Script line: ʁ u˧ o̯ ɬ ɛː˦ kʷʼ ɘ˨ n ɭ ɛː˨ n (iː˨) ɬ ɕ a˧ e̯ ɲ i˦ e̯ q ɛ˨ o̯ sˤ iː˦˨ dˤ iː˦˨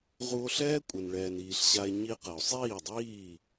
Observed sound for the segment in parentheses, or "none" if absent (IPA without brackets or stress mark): iː˨